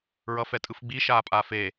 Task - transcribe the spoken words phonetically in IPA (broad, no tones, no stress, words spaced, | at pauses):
ɹʌfɛtʼɯfɡ͡bi ʃaːpʼaːfe